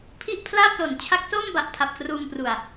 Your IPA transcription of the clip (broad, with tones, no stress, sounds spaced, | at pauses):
pʰ i˥˩ ʔ pʰ l aː˥˩ p̚ l o˨˩ n t͡ɕʰ a˦˥ k̚ s oː˥˩ m b a˨˩ ʔ pʰ a˨˩ p̚ k r uː˧ m p r u˨˩ a̯